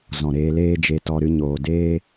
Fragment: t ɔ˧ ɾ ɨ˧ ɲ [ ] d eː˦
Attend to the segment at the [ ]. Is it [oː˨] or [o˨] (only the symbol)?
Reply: oː˨